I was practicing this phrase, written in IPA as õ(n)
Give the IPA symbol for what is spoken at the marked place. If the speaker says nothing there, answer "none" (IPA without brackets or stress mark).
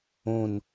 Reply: n